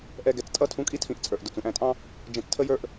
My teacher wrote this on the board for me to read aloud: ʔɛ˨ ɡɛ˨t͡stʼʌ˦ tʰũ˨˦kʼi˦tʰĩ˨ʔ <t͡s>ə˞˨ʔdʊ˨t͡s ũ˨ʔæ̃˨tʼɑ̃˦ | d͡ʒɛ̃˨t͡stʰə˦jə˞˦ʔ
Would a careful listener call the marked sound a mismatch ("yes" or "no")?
yes